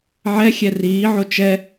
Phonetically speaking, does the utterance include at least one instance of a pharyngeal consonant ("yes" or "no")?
yes